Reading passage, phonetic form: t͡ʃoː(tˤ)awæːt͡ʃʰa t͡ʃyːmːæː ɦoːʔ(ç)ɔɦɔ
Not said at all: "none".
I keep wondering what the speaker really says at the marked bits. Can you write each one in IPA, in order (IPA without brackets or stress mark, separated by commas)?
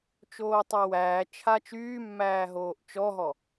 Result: tˤ, t͡ʃ